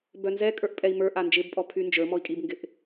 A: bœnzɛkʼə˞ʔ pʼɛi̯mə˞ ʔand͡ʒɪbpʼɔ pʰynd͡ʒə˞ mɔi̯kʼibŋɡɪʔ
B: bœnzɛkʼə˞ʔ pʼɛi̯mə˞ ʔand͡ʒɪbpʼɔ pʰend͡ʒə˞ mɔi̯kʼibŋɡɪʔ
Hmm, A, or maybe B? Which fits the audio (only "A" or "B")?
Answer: A